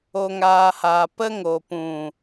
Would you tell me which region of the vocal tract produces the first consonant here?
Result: velum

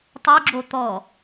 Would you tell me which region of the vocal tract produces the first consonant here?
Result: tongue tip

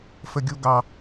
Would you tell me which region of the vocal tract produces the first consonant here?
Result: lips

